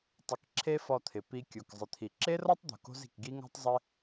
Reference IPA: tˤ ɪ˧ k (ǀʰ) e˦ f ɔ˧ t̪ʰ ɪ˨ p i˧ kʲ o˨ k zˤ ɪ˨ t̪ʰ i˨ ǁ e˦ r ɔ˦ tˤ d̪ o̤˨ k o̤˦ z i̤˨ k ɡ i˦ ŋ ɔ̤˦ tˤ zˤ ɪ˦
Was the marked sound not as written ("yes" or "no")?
yes